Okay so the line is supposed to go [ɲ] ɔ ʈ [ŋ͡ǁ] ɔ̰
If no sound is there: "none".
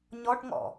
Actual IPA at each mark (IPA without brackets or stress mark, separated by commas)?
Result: ɲ, ŋ